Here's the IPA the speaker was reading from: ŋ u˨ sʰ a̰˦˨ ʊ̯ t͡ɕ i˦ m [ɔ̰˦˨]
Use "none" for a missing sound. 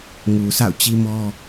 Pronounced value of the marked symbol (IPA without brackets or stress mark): ɔ˦